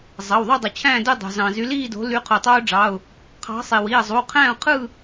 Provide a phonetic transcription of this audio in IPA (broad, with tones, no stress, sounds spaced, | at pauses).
zˤ ɑ˩˧˩ w ðˤ o˥˧ dˤ u˩ t͡ɕʰ æ̃ː˥˧ d ø˥˧ dˤ o̤˩ z ɑ̃˩ z y˨˦ l iː˥˧ d o̤˨˦ l y˨˦ qʰ u˩ tˤ oː˦˥ ɖ͡ʐ ɑ˩˧˩ ʊ̯ | qʰ ɑ̤˨˦ sˤ i˩ w i˩˧˩ ə̯ zˤ u˩˧˩ qʰ æ̃˥˧ ʊ̯ qʰ ɯ˥˧